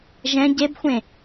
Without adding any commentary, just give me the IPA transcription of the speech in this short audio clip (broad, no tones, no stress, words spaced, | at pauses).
ʒɛ̃ ɟebxʷẽ